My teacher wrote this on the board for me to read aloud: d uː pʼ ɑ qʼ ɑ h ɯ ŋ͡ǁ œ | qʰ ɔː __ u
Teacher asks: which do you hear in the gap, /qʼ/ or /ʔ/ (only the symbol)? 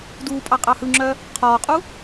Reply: qʼ